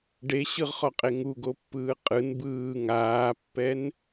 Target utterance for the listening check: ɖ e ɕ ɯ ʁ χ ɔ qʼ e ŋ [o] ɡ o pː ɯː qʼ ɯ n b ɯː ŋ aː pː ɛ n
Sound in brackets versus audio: incorrect: u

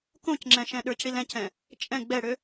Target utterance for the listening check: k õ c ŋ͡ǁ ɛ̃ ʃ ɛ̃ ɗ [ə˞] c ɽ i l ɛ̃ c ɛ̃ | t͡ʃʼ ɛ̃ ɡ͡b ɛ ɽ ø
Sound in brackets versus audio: correct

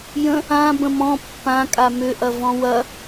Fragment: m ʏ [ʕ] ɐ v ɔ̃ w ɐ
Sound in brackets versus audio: incorrect: ʔ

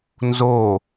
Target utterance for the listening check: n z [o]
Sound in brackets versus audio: correct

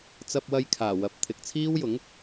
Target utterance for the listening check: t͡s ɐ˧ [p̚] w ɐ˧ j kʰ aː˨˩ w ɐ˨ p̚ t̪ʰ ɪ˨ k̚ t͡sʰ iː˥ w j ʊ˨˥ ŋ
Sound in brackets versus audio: correct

